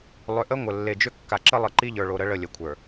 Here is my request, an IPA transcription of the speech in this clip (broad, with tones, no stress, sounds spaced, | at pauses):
lˠ ʏ˨ ʔ ə˦ ŋʷ ə˨ lː e˨ d͡ʒ ʏ˦ kː a˨ ǁ ə˦ lˠ ə˨ ǃ i˦ ʎ ə˞˨ ɭ o˨ ɾ ə˦ ɭ ə˦˨ lʲ ə˨ kʷʰ ə˞˨